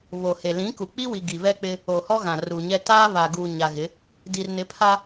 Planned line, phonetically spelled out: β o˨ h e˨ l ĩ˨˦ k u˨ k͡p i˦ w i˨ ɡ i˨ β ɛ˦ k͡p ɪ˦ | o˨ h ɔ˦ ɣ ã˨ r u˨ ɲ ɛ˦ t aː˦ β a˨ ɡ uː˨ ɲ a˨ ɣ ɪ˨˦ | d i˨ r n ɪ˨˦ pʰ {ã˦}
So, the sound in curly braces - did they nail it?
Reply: no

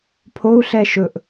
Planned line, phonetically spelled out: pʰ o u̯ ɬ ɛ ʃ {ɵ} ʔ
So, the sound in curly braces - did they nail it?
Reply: yes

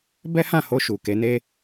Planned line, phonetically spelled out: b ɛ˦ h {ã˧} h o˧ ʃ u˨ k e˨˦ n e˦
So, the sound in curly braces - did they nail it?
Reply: no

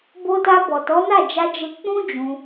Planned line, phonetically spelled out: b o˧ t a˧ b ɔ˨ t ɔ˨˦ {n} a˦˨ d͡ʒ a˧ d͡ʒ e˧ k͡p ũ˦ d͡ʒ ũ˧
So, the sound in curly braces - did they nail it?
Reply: yes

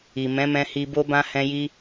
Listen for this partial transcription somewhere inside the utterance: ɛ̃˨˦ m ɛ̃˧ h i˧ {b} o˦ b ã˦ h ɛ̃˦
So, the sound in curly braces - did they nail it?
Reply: yes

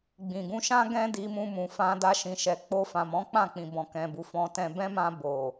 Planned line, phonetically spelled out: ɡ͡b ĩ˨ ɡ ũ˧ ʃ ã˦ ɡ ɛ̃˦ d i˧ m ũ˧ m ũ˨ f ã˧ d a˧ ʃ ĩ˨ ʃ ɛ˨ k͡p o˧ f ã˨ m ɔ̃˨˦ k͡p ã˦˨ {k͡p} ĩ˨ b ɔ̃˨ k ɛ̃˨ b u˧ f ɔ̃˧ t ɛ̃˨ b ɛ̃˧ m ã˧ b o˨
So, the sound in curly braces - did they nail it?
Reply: yes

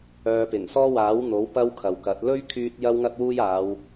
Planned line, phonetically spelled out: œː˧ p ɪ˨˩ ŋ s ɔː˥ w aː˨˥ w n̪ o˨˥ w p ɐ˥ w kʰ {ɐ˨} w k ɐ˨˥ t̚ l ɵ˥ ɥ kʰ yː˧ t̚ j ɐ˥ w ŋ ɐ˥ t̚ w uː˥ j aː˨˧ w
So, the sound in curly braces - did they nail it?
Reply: yes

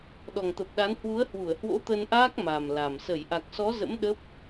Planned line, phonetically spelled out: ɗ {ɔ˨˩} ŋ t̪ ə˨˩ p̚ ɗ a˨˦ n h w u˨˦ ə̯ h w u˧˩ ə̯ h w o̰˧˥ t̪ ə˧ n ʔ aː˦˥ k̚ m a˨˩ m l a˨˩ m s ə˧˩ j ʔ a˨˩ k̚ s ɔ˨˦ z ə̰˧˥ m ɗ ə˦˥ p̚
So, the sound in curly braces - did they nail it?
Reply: yes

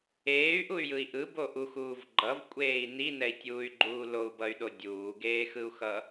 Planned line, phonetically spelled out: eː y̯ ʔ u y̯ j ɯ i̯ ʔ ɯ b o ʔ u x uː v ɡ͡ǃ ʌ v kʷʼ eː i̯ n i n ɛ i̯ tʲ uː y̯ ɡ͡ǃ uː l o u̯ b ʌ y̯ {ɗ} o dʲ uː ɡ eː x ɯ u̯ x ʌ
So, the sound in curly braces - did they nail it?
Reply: yes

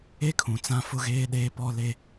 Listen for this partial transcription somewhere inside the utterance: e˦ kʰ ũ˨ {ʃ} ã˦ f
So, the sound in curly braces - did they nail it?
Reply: no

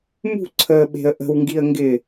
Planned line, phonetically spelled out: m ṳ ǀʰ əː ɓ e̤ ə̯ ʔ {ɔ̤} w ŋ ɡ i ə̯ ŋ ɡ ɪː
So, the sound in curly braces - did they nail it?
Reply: no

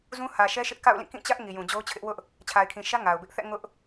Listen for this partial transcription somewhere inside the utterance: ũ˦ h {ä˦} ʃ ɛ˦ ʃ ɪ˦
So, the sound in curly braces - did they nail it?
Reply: no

